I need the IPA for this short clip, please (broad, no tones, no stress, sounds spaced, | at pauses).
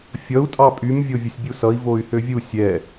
fʲ ʌ u̯ tʼ ɑ pʼ y m vʲ o vʲ ʌ sʲ bʲ u s ʌ i̯ v o y̯ h ø vʲ u sʲ ɛ